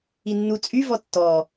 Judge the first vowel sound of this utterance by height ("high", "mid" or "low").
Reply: high